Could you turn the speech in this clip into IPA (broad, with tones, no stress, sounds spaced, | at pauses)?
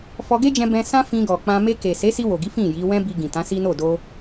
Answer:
f ɔ˧ ɡ e˦ d͡ʒ ɛ̃˧ b ɛ̃˧ s ã˦ f ĩ˧ ɡ ɔ˨ k͡p ã˧ m e˧ k e˨ s e˨˦ s i˧ w o˨ ɡ i˨˦ f ĩ˦˨ j i˨˦ w ɛ̃˦ b i˧ ɡ ĩ˨ t ã˨˦ s i˦ n o˦˨ d o˧